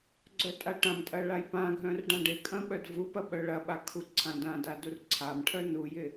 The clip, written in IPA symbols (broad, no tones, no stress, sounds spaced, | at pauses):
ɡ͡ǀ œ tʼ a ʈ ã m tʼ ɐ ɭ a j p ã ɡʱ œ̃ r ɖ ã ɖ ɪ kʼ ɐ̃ ɓ œ d v u p ɐ ɓ œ ɭ ɐ ɓ a kʰ u ǀʰ ã d ã d a d u r ǀʰ a m ʈʰ œ n u j ɪ